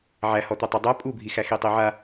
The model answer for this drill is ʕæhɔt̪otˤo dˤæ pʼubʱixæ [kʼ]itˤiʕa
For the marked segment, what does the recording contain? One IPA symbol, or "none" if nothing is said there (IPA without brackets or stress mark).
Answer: x